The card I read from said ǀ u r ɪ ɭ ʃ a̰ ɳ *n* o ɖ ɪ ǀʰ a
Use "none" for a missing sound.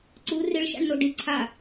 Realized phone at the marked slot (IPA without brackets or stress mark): n